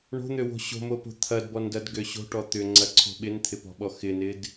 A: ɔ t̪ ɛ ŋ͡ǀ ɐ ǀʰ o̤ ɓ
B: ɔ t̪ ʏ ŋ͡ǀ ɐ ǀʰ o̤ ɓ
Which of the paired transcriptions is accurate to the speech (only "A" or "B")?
B